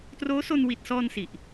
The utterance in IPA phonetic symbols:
t r oː˦˥ s o˧ n w i˨˩ t̚ s ɔː˧ n s i˨˩ ʔ

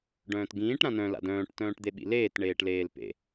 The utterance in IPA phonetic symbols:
ɖ œ̃ː t ɡ ĩː ʈ ɾ ã n œ̃ l a̰ d œ̃ː ʈ t œ̃ː ʈ d̪ e ɓ ḭ l eː t ɳ eː ʈ l eː l p ḛ

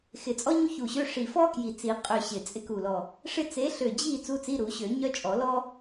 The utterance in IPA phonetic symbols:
x ɪ˨˩ t͡sʼ ɔ˥ ɲ u˥ ç u˨˩ ɕ ø˧˥˧ ʂ i˨˩ f ɔ˥ k j i˨˩ t͡s i˨˩˦ qʼ ø˦˨ ɕ ɪ˨˩ t͡sʼ ɪ˥ k u˨˩ l ɔ˨˩ | ʂ ɪ˥ t͡s e˨˦ ɬ ø˨˩ d͡ʑ i˦˨ t͡s u˧˥˧ t͡s i˧˥˧ ɾ u˨˩˦ ɕ ø˨˩˦ ɲ œ˥ t͡ʃʼ ɔ˨˩˦ l ɔ˥

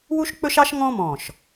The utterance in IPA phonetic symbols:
w u˥ ʃ k͡p ɵ˥ ʃ ɑ˥ ʃ ŋ ɔ̃˥ m ɔ̃˧˩ ʃ

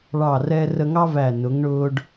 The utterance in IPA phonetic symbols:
ɭ ɑ˧˩ r ɛ˧ r ə˧ ŋ ɑ˥ v æ˧˩ n ʊ˩˧ ŋ ɳ ʊː˧ ɖ

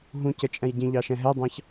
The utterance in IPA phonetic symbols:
ɦ ũ c ə t͡ʃʼ ɛ̃ j ɟ ĩ ʎ ɑ ʃ ɛ̃ ɦ ɛ dˤ ɑ̃ ç

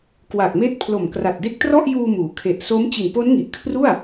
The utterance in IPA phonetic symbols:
k w a˨˩ k̚ m eː˦˥ t̚ pʰ l o˨˩ m k r a˨˩ t̚ d e˦˥ k̚ t r ɔ˥˩ ʔ j uː˧ m uː˩˦ kʰ e˨˩ ʔ s o˦˥ m t͡ɕ i˨˩ n p o˦˥ n ŋ i˨˩ ʔ kʰ r u˥˩ a̯

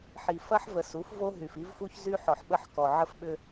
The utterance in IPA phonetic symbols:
ħ i˨ f ɐ˦ ħ v ə˨ s u˨˦ f v o˦ ɦ y˨ f i˦ v f u˦ ç z y˦ ħ ɔ˨ ħ ɓ ə˦˨ ħ k ɔ˨ ʕ ə˦ f ɓ ʏ˦

